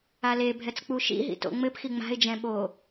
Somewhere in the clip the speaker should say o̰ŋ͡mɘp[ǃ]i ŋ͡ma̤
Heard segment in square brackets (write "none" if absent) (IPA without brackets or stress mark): x